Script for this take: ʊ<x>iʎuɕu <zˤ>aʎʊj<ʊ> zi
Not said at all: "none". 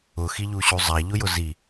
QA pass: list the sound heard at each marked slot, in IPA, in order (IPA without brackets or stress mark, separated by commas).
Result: x, zˤ, ʊ